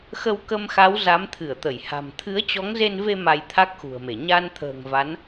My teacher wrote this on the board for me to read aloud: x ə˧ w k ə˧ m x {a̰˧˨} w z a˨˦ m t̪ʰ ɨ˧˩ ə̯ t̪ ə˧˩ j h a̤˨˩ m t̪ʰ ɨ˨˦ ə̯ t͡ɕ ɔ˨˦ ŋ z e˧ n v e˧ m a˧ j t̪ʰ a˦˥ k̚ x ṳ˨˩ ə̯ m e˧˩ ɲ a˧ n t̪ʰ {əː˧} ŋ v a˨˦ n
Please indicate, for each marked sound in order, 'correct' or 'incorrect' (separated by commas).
incorrect, incorrect